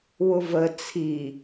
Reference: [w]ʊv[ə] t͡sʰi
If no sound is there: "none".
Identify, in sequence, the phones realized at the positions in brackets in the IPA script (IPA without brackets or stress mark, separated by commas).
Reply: w, ə